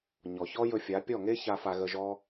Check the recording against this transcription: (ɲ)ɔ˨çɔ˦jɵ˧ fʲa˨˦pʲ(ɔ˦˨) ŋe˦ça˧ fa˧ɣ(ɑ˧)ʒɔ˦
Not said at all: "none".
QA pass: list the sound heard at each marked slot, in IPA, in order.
ɲ, ɔ˦˨, ə˧

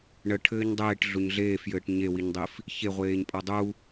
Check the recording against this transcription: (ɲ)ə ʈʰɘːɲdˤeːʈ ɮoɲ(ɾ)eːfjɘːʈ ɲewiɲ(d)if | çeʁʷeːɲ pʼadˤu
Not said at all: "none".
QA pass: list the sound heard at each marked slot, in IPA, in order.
ɳ, ɮ, dˤ

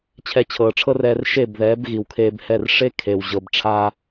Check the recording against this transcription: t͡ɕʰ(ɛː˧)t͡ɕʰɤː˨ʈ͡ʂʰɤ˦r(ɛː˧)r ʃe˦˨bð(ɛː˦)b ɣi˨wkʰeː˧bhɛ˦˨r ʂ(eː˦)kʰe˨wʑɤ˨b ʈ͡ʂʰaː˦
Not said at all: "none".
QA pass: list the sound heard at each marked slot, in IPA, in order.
ɛ˧, ɛː˧, ɛː˨˦, e˦

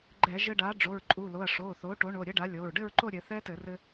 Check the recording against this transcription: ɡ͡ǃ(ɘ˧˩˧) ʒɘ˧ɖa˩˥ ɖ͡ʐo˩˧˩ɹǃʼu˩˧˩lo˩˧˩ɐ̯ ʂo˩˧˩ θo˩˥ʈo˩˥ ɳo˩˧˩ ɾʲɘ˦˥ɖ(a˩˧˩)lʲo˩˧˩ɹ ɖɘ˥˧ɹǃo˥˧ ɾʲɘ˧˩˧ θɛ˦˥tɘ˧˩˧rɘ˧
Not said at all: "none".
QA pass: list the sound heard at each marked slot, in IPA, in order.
ɛ˧˩˧, a˩˥

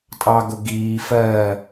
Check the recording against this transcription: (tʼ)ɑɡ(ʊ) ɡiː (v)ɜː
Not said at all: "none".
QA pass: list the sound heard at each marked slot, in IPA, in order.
tʼ, ʊ, f

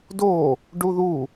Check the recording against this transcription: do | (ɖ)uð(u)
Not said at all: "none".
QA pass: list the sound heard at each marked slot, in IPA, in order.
ɖ, u

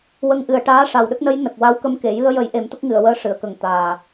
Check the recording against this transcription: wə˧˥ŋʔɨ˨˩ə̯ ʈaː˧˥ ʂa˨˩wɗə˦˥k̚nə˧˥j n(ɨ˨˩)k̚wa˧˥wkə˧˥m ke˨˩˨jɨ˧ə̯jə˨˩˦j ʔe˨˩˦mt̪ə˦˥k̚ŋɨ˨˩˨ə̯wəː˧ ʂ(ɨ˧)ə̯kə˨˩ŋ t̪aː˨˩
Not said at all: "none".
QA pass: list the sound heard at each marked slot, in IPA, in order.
ə˨˩, ɨ˨˩˨

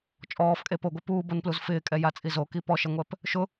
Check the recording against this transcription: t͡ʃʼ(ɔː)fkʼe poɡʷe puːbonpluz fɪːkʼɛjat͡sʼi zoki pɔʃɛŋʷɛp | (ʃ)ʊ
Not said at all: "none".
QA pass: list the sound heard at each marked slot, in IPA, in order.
ɔː, ʃ

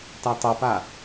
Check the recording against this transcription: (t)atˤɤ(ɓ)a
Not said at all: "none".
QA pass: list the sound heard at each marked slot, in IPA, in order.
t, p

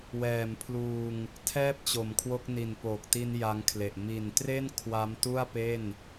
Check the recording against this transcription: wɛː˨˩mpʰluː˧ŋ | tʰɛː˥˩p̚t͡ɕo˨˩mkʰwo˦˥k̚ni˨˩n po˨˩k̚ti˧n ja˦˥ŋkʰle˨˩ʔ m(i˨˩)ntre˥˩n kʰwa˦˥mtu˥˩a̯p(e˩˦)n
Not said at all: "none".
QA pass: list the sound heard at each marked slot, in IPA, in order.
i˨˩, e˥˩

